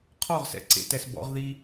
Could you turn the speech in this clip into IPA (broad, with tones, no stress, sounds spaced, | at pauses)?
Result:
qʰ ɔ˦˨ ʁ s ɛ̰˨ ǀ ḛ˨ t ɛ˨ s b ɔ̰˨˦ ʁ ð i˦